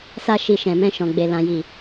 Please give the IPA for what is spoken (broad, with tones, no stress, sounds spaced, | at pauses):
s a˦ ʃ i˧ ʃ ɛ̃˨ m ɛ̃˧ ʃ ɔ̃˨ ɡ͡b e˨ l ã˨ j i˨